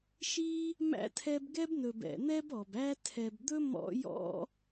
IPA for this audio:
ʃi˥ | mæ̰˥tʰɛ˦bɡɛ˥bnɵ˨b ɛ̰˨n̪ɛ˥bɔ˩b æ˦tʰɛ˨bd̪ɵ˥ mɔ̰˥jɔ̰˥

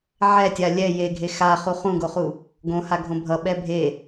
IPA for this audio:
ʕɛtʲa lʲɛ jeɡʱe xaχu χũɡoχu | ɡõhaɡʱõ bʱʌɓɛ bʱe

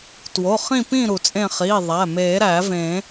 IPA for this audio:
two˩˧˩χĩ˦˨pĩ˦˨ ɾu˨˩˦t͡sʼẽ˦˨ χiː˩˧˩ ðˤæ˩˧˩ meː˨˩˦ɾæː˨˩˦vẽː˨˩˦

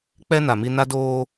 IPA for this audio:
k͡pɛ˦ na˨mi˦ na˦doː˦

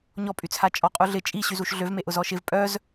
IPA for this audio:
ɲɔpʼyt͡sʰa t͡ʃʼɔqʼuɮɪ t͡ʃʼiɕyzuʃ ɮøvmeʔʊ zɔʃɪv pʼœz

